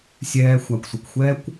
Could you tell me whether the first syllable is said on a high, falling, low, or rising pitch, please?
low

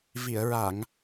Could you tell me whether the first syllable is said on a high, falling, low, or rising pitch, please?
low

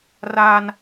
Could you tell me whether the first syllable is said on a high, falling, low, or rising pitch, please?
high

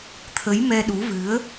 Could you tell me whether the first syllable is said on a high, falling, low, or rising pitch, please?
rising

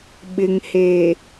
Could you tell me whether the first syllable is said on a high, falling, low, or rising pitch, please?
low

